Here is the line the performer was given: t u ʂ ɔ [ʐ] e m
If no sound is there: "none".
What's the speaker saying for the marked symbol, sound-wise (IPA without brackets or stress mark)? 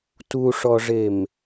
ʐ